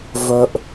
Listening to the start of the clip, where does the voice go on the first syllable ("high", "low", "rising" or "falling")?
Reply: high